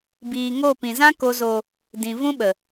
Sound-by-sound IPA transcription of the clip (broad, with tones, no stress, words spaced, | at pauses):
biː˨ŋo˦˨ pĩ˨ zã˧ko˨zo˨ | dĩ˨ vũ˧ɓə˨